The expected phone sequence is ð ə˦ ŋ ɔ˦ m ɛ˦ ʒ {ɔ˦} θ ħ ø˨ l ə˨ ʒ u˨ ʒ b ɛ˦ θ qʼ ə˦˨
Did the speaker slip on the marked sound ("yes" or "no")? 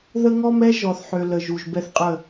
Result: yes